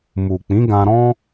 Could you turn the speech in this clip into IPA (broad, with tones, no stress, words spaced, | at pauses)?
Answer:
mu˨k͡pĩ˨˦ɡã˧ɾɔ̃˦